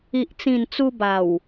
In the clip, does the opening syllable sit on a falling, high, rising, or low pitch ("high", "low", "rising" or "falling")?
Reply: low